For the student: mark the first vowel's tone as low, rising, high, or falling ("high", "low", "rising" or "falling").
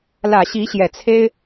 low